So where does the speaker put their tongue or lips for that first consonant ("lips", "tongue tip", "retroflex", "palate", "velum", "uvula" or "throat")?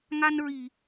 velum